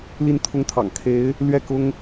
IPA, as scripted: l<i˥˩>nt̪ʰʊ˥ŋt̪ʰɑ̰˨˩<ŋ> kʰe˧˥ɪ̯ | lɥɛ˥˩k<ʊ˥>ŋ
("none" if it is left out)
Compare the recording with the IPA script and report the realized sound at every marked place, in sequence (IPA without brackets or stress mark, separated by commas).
i˥˩, ŋ, ʊ˥